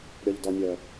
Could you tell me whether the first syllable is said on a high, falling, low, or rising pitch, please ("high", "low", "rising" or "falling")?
low